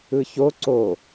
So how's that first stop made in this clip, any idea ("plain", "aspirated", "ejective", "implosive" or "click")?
click